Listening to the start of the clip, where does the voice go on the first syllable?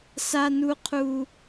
high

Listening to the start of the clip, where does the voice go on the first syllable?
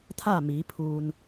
falling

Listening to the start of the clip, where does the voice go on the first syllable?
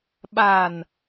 low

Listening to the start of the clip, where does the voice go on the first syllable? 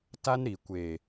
high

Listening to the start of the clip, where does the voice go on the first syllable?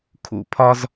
low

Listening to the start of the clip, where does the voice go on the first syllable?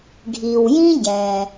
low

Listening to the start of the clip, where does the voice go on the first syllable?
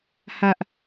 high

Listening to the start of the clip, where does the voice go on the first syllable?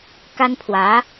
high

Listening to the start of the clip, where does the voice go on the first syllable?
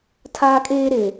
high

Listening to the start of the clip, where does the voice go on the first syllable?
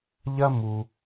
high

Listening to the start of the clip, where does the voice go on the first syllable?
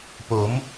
rising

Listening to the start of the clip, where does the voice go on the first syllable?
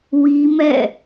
high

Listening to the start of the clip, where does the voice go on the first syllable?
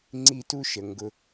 high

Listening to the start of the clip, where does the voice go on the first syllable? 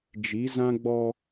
rising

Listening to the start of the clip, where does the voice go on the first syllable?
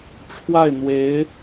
falling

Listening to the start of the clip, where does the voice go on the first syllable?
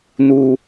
high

